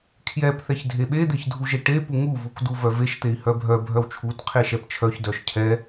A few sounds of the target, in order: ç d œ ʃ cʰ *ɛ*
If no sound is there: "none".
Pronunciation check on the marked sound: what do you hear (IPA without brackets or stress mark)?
ɛ